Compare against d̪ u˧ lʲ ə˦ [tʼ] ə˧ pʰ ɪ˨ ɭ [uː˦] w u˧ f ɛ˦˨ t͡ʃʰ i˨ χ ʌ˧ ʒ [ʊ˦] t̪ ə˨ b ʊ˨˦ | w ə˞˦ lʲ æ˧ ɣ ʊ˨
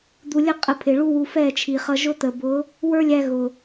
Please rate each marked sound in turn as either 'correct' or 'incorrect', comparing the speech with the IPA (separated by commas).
incorrect, incorrect, correct